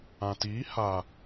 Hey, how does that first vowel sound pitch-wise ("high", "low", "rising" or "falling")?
low